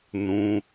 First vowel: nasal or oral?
nasal